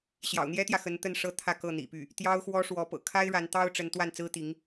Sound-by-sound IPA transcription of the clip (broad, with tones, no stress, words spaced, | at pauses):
ɕjɑ̰˨˩ʊ̯n̪jɛ˥t̪jä˨ xə˧˥nt̪ə˥˩n ʂɤ˥t̪ʰä˥˧ kɤ˥˩n̪ḭ˨˩py˥˩ | t̪jɑ˥ʊ̯xwɔ˥ʂwɔ˧˥ pɤ̰˨˩kʰa˥ɪ̯ ɻa˧˥nt̪ɑ˥ʊ̯ ʈ͡ʂə˧˥nt̪wa˥˩n t͡sɹ̩˥t̪i˧˥ŋ